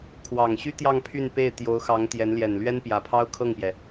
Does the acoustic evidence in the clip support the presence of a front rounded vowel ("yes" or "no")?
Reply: yes